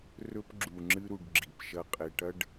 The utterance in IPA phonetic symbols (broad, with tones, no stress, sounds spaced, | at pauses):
r ɵ˦ p ɡ͡ǁ u˨ ŋ͡ǁ ɨ˦ ɾ u˨ ɖ ɡ͡ǁ i˨ p ʃ ɐ˦ qʼ e˨ ʈ ɐ˦ ɖ